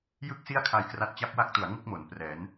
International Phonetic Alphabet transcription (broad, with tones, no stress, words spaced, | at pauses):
jɯ˥˩k̚si˥˩a̯ kʰa˧jkra˦˥t̚ t͡ɕa˦˥p̚wa˦˥k̚tu˩˦a̯ ŋu˥˩k̚mo˩˦n prɛː˩˦n